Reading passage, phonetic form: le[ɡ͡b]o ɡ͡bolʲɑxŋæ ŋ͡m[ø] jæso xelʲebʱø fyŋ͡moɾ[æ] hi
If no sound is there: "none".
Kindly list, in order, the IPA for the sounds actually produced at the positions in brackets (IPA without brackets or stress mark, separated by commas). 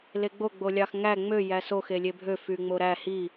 ɡ͡b, ø, æ